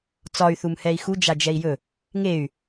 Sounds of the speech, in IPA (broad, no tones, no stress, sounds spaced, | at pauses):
t͡s ɒ y̯ θ u m h ɛ i̯ x u d͡ʒ a d͡ʒ ɛ i̯ j ɵ | ŋ e y̯